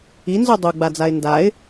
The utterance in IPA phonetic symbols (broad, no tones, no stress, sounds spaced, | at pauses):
i n z u dˤ u ɡ͡b a d͡z a ɪ̯ n d a ɪ̯